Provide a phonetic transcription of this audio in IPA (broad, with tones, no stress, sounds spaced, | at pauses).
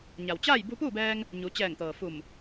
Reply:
ɲ a˩ w t͡ɕ aː˥˨ j b u˧ p uː˥˨ b ɛː˧ ŋ | ɲ u˩˧ t͡ɕ ɛː˧˩ ŋ t̪ ɤː˩ f u˧˩ m